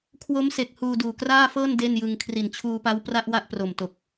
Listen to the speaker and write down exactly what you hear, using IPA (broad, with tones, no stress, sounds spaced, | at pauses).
kʰ w o˦˥ m s e˨˩ k̚ h uː˧ d uː˨˩ k r aː˥˩ f ɤː˥˩ n d e˥˩ n j ɯ˧ ŋ kʰ r i˨˩ n t͡ɕʰ uː˧ p a˦˥ w p r a˥˩ ʔ w a˥˩ ʔ p r o˨˩ m t o˨˩ k̚